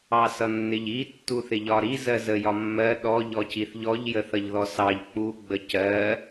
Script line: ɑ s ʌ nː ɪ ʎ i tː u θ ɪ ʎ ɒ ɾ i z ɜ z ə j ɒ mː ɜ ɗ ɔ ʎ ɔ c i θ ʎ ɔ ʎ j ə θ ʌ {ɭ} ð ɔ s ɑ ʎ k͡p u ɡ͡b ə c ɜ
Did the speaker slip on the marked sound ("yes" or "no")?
yes